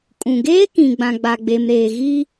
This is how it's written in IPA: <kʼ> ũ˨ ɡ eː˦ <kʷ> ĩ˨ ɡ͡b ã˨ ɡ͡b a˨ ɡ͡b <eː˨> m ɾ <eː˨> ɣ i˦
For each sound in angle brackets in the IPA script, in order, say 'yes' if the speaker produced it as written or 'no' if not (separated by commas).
yes, no, no, yes